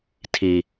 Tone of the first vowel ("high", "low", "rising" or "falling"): high